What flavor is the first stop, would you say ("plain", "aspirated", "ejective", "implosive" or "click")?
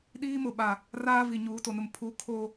implosive